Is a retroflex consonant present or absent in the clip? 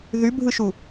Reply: absent